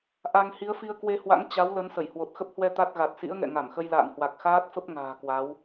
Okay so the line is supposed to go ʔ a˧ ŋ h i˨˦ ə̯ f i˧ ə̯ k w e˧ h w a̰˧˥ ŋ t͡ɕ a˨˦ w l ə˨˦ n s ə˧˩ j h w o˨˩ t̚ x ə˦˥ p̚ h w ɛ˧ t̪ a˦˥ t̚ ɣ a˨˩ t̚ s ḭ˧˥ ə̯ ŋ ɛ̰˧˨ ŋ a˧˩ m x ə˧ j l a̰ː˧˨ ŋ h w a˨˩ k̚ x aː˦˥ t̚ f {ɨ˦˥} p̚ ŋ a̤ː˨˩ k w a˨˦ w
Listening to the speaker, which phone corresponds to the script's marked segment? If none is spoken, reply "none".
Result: ə˦˥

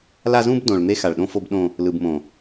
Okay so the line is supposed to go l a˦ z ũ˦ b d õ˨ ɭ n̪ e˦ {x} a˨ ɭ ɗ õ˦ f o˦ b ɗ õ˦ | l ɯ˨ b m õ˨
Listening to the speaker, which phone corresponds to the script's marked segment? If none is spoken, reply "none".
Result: x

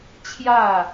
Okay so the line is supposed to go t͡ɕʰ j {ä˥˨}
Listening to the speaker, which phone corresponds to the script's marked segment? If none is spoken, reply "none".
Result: ä˥˨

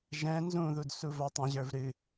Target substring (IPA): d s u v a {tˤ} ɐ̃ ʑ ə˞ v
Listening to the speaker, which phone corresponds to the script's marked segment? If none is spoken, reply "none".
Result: tˤ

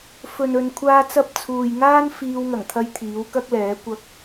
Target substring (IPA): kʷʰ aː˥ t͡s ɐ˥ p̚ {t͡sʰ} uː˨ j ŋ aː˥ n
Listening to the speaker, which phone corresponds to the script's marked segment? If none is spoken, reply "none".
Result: t͡sʰ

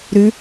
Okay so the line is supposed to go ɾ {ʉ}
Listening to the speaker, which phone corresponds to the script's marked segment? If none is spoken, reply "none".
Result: ʉ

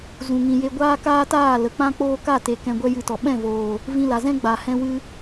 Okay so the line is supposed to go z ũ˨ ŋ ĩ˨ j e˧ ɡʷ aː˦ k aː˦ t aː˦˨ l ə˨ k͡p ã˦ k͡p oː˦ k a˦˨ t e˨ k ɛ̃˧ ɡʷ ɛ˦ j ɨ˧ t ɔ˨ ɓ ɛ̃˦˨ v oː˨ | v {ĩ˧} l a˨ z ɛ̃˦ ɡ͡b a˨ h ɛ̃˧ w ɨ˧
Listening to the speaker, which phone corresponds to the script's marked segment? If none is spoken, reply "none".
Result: ĩ˧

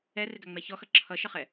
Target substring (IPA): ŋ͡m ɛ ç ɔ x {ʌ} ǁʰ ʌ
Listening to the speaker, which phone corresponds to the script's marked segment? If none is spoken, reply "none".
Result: ʌ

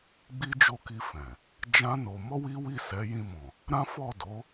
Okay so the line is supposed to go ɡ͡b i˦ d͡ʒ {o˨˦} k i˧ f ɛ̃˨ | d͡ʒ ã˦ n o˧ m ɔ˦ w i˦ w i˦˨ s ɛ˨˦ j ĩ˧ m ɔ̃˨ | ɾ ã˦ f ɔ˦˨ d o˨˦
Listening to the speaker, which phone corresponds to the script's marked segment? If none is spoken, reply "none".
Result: o˦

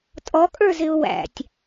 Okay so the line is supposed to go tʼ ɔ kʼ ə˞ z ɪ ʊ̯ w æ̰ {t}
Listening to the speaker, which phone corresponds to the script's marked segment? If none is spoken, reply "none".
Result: tʲ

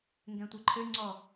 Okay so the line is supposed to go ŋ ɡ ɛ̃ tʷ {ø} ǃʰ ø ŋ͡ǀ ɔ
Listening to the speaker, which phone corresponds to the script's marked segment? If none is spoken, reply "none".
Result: e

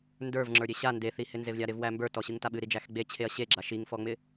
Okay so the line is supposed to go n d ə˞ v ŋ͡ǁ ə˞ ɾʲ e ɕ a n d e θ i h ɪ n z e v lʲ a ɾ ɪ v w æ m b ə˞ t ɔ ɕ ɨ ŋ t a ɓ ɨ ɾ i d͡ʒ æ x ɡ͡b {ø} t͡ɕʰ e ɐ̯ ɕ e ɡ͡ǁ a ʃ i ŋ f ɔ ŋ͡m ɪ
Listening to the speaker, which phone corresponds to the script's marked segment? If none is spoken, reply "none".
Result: e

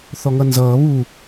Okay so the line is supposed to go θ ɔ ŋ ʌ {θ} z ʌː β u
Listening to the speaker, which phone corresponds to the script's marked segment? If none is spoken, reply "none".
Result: n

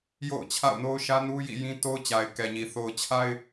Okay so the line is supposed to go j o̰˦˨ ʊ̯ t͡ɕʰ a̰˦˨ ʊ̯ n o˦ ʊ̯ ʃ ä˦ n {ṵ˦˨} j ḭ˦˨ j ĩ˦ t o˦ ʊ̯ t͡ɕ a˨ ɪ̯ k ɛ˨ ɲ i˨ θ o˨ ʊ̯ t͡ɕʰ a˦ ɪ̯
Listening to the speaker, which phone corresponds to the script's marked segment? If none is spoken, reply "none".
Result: u˦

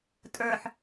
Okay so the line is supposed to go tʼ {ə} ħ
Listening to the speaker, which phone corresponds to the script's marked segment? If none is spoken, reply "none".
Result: ə˞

